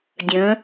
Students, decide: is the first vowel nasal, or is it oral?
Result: nasal